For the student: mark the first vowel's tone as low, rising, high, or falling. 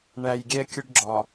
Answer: low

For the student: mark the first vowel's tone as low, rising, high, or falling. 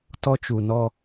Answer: high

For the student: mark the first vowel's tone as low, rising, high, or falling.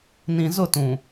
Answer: low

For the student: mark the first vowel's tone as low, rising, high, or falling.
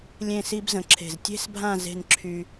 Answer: falling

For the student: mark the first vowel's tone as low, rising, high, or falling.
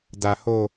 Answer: low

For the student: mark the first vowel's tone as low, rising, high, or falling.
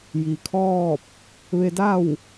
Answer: low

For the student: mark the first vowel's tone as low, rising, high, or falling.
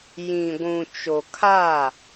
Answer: low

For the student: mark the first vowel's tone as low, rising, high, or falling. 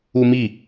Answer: high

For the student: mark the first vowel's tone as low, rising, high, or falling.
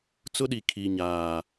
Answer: high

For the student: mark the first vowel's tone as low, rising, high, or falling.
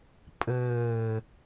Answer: low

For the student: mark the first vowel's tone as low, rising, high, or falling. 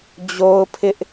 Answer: high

